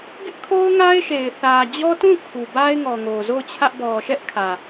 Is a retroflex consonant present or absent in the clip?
absent